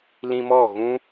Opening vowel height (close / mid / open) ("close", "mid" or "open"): close